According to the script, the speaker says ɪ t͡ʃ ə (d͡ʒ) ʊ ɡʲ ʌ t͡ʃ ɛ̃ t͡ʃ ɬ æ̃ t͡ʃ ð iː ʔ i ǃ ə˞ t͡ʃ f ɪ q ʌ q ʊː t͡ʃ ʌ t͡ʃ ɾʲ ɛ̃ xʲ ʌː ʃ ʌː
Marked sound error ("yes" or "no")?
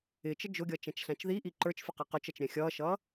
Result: no